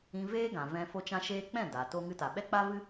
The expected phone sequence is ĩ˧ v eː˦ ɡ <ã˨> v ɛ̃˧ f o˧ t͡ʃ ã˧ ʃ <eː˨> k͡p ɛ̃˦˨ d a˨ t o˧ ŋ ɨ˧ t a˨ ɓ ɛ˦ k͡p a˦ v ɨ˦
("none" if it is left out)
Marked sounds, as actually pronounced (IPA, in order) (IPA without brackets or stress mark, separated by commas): ã˨, eː˧